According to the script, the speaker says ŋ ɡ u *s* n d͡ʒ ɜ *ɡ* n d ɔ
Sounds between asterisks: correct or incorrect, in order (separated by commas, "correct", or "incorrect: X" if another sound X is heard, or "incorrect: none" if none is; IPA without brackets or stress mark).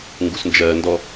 correct, incorrect: none